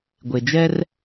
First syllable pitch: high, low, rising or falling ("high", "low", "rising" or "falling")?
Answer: low